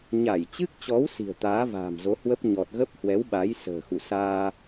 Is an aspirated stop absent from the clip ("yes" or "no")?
yes